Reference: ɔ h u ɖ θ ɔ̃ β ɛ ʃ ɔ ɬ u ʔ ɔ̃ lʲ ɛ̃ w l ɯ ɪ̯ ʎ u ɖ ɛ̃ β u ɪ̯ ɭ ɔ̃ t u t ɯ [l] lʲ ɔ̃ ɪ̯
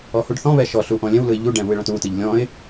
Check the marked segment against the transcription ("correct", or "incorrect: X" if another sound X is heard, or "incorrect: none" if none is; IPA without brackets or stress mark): incorrect: ʎ